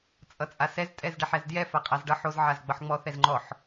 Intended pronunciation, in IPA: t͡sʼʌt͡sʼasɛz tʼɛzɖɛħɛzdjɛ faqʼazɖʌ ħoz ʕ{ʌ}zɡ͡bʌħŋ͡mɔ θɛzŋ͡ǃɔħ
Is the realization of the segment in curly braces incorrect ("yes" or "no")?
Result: yes